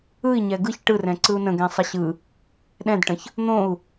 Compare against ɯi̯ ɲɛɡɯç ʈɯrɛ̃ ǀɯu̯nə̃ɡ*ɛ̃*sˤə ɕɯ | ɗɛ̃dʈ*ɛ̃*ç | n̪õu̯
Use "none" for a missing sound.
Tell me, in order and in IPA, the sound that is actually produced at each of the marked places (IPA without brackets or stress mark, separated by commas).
ɛ̃, ə̃